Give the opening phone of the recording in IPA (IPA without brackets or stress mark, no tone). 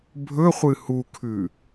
bʱ